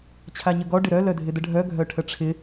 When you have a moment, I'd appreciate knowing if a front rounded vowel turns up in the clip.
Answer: yes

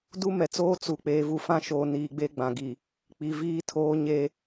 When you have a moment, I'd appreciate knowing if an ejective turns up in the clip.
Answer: no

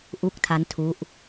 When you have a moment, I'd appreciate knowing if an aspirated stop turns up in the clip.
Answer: yes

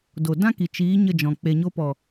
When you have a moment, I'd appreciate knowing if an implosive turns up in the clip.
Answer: no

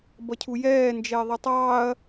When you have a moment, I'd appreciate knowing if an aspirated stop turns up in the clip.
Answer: yes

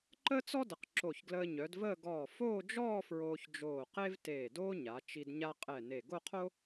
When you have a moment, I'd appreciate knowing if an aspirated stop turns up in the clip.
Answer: yes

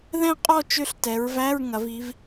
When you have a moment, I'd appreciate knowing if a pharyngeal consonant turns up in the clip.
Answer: no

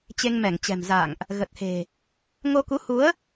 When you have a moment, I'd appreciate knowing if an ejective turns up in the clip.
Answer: no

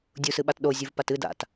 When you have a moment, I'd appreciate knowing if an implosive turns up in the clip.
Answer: yes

